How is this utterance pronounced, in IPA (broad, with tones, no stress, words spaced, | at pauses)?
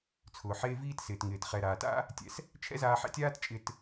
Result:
t͡sʰʊː˩ħeː˧ viː˥tsɪː˩tŋɪː˩t χɛ˩ ɾaː˩ta̰˥ | tʲɛ̰˧s | t͡ʃʰɛ̰˥zaː˧ħɛ̰˧tʲaː˥t t͡ʃʼɪ˧t